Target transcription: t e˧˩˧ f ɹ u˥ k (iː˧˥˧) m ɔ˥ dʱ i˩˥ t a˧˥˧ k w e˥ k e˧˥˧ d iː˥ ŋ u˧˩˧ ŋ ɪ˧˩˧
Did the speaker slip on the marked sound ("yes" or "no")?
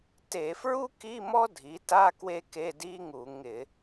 yes